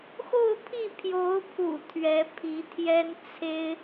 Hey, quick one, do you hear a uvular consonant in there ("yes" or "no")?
no